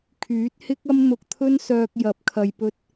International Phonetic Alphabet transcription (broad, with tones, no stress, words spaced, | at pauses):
kʰyː˨˥t̚hɪ˥k̚ɐ˥m n̪ʊ˧k̚t̪ʰɵ˥nsœː˧k̚jɐ˨˥p̚ kʰɐ˨jpɵ˧t̚